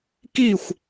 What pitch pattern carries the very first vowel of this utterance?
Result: falling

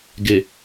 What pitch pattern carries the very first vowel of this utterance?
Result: low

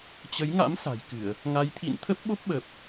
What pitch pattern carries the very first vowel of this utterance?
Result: rising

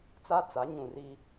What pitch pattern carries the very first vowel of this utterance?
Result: high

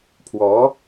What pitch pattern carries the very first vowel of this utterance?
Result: rising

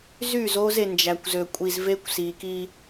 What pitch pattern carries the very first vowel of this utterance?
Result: falling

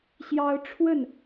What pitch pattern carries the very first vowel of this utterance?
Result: high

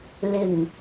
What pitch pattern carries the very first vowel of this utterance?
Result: low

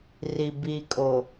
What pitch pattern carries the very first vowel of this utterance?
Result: low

